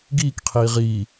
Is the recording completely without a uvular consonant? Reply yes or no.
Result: no